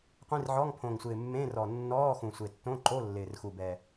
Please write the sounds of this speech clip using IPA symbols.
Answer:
qʷ ĩ˧˥˧ r ʕ ɔ˧˥˧ ŋ pʰ õ˨˩ ŋ sʷ ɪː˨˩ mː ẽ˧˥˧ r ɔ˨˩ nː ɔː˧˥˧ x ũ˨˩ sʷ e˨˩ tː õ˧˥˧ ǃ o˧˥˧ lː ɪː˨˩ r x u˨˩ b ɛ˨˩

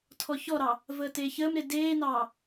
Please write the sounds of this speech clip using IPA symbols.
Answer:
tʰ ɔ ç ɔ ɾ ɑ | v əː t eː ç əː m ɾ e d eː n ɑː

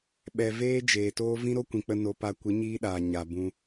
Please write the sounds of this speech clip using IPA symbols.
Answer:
ɓ ɛ˨ v eː˦ d͡ʒ eː˨ t oː˦ v ĩ˦ ɾ o˦ kʷ ĩ˨ k͡p ə˧ n o˧ p a˧ kʷ ɨ˨˦ ɲ iː˦ ɗ aː˨ ɲ a˨ b ũ˧

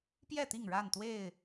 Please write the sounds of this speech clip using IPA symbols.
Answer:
p j ɛ˥˨ t̪ i˥˨ ŋ ɻ a˥˨ n t̪ w e˥˨ ɪ̯

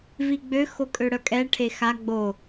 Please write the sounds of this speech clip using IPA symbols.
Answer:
v i ɡ͡b ø x o kʼ ø ɽ œ kʼ ɛ ʈʰ e x a ɡ͡b o

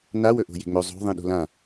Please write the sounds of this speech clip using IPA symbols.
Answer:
n a w ɵ ʔ o̤ j e̤ ŋ͡m ɵ zˤ o̤ ðˤ ĩ ɗ o̤ l ã

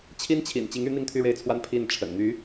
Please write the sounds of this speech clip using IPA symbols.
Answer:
t͡ɕʰ i˥ n t͡ɕʰ ḭ˨˩ n t͡ɕ i˧˥ ŋ y˧˥ n̪ i˥˧ ŋ t̪ʰ y˥˧ ɻ e˥˩ ɪ̯ t͡sʰ w a˥ n pʰ i˥˩ n ʈ͡ʂʰ ə̰˨˩ n n̪ y˧˥

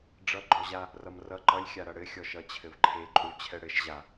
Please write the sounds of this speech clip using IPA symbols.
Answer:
ɖ͡ʐ ʌ ɡ͡ǃ ɔ ʑ a | r ʌ m r ʌ ǃ ʌ lʲ xʲ a ɾ ʌ ɽ ɘ xʲ ɔ ʃ ʌ t͡ɕʰ ɘ v ǃʰ e ǃʼ u ɭ t͡ɕʰ ɛ ɽ ɘ ʃ ʑ a

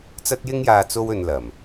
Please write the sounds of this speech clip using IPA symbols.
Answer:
t͡s ɐ˥ t̚ j ɪ˥ ŋ j aː˧ t͡s o˥ w ɵ˧ n l ɐ˨˩ m

